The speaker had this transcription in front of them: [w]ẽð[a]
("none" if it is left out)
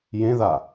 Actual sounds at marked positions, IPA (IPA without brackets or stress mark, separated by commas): j, a